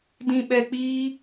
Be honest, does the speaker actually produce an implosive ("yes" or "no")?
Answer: yes